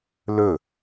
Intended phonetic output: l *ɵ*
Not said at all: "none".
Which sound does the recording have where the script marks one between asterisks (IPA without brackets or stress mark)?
ɵ